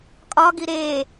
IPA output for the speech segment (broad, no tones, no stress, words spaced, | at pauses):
kʼɒɡi ɾe